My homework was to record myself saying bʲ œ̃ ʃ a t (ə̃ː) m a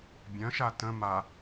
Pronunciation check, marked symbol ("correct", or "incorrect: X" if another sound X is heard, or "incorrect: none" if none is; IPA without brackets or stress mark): incorrect: ə̃